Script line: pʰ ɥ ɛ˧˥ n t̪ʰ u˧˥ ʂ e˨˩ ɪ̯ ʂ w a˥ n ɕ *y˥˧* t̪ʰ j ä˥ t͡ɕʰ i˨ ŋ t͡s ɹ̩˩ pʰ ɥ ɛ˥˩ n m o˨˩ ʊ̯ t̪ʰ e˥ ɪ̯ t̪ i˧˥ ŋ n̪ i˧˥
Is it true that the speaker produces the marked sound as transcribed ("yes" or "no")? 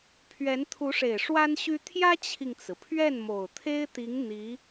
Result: no